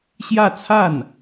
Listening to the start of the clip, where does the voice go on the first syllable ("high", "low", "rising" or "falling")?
falling